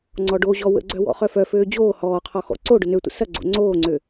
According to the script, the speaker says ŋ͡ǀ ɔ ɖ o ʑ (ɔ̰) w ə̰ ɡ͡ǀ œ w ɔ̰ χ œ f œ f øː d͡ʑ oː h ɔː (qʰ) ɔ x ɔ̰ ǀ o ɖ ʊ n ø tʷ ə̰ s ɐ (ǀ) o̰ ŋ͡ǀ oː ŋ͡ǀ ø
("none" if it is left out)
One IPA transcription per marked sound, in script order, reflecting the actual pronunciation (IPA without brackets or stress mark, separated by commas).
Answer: ɔ, qʰ, ɡ͡ǀ